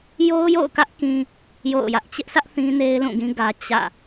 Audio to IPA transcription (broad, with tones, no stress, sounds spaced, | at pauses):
j o˦ ʊ̯ j o̰˦˨ ʊ̯ k ä˦ ʔ k ĩ˦ | j o̰˦˨ ʊ̯ j ä˦ ʔ t͡ɕ ɪ˦ ʔ sʰ ä˦ ʔ θ ĩ˦ n e˦ ɪ̯ l ũ˦˨ ɡ ĩ˦ ɡ ä˦ t͡ɕ ä̰˦˨